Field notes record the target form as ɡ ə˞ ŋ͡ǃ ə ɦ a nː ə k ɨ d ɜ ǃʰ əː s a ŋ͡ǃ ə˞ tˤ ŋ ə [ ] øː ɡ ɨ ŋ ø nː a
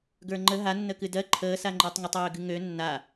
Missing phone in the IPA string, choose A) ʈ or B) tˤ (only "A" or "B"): B